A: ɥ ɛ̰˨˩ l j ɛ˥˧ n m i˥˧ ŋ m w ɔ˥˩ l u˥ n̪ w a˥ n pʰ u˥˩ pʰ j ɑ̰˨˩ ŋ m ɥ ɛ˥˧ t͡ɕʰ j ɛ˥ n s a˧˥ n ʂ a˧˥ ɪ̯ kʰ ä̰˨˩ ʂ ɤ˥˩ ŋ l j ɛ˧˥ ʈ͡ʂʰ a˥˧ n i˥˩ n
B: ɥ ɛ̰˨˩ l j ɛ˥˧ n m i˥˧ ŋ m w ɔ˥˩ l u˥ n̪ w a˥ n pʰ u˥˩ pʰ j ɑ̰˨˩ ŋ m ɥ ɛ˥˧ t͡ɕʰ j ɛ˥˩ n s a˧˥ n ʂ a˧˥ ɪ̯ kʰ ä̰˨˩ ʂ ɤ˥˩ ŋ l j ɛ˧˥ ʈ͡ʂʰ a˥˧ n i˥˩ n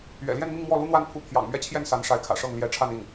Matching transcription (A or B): B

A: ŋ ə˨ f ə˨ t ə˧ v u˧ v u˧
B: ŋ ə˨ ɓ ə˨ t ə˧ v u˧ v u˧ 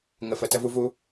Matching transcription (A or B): A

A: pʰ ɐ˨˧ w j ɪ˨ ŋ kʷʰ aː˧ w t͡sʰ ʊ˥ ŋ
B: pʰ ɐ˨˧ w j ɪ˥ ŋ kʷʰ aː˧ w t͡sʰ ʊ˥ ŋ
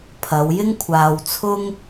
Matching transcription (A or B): B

